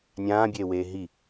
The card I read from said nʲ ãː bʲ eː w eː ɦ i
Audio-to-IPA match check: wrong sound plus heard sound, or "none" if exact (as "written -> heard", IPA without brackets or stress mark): none